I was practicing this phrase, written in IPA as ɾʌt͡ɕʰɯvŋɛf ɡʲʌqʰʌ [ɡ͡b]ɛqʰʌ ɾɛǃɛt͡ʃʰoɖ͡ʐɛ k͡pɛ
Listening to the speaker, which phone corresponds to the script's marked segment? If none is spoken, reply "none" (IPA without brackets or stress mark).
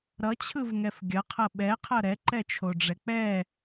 ɓ